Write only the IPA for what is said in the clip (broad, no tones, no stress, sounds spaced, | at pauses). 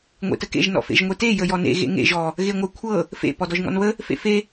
ŋʷ ḛ t ə k ḛ ʒ n ɔ̰ f ḛ ʒ ŋʷ e t e j ə j ɔ n ḛ ɣ ḛ ŋ ḛ ʒ ɔ | ɣ e ŋʷ ə kʷʰ ɤ | f ḛ p ɔ d ɔ ʒ ŋ ɔ̰ n β ə | f ḛ f e